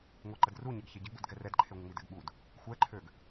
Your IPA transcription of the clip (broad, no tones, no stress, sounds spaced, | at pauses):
ŋʷ e ǃ ə d r u ɲ ɛ ɡ ç e ɟ ə ɡ͡b u d ɡ ɛ r ɛ d ǃʰ e ŋʷ ə ŋ͡m i d ɛ ɡ ɓ u d | xʷ ɛ ǃʰ ø ɡ